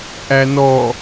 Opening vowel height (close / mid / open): open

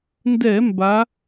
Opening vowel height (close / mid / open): mid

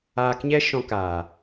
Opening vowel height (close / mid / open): open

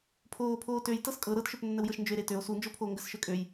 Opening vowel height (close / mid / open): mid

